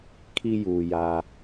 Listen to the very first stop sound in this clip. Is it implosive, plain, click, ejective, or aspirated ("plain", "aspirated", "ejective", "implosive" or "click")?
aspirated